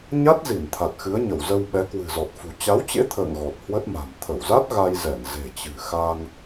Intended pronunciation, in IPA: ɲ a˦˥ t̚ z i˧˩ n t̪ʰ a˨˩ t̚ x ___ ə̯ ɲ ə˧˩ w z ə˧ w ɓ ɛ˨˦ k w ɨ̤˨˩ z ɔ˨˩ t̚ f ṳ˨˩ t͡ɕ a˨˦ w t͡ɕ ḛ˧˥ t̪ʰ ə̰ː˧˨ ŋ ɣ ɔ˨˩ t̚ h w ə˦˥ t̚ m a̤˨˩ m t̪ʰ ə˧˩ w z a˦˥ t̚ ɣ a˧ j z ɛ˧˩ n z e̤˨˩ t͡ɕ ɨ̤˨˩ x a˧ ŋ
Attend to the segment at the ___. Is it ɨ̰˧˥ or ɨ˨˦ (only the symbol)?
ɨ˨˦